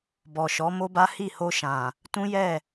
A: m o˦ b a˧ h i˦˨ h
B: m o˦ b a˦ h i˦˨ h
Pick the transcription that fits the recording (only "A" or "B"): B